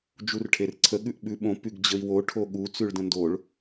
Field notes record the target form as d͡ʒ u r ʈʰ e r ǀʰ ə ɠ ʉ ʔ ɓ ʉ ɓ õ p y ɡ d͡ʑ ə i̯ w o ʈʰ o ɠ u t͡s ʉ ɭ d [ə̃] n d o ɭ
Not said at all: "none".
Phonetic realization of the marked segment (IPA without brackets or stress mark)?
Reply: ə̃